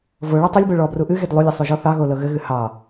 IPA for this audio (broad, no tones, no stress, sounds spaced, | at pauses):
v o ɭ o tˤ o lʲ b o ɭ ɔ b r u ʔ ɨ ɣ e d lˠ u lʲ ɘ sˤ u ʒ ɔ θ ɑ ɣ o l ɤ ɣ ɘ ɣ ɨ h ɑ